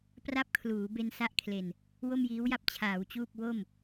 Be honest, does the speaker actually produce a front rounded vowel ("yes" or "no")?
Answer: no